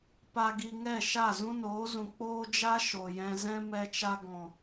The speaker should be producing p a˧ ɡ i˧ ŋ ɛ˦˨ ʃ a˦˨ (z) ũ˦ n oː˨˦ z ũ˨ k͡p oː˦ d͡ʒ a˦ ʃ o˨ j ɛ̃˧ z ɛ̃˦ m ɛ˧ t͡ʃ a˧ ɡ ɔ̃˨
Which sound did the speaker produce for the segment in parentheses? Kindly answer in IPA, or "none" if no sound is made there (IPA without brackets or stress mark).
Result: z